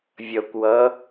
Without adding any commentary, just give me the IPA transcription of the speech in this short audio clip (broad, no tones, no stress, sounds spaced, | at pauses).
vʲ ʌ kʷ w ʌ